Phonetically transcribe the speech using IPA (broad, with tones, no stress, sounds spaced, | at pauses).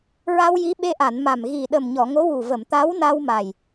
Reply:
ɹ a˧ w j i˧˥ ɓ e˧ ʔ a˨˩˨ n m a˨˩ m ɣ i˨˩ ɗ ə˨˩ m ɲ ɔ˨˩˨ ŋ o˧˥ w u˨˩ v ə˨˩˨ m t̪ a˧˥ w n a˧ w m a˨˩ j